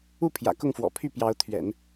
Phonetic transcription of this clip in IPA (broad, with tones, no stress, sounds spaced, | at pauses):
u˥˩ pʰ j ä̰˨˩ k ʊ˥˩ ŋ f w ɔ̰˨˩ pʰ y˥˩ p j ɑ˧˥ ʊ̯ t̪ʰ ɥ ɛ̰˨˩˦ n